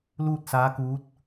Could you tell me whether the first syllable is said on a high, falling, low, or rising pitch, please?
falling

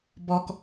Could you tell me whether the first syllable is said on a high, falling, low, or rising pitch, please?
low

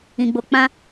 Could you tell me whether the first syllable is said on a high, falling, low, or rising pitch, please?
low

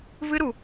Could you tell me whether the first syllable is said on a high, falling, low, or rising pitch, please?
high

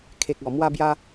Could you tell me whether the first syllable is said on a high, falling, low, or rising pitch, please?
low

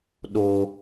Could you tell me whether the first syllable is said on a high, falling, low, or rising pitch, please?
low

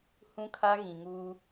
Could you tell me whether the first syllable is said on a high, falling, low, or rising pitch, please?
high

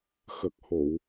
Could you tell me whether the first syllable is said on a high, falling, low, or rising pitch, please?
low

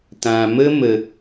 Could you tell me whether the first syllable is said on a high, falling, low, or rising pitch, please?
low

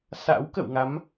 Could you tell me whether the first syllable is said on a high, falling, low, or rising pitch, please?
rising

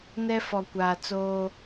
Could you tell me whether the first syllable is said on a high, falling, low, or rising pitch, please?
high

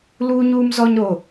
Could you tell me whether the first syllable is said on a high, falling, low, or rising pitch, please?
high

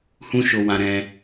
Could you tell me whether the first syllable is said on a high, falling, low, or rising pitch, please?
high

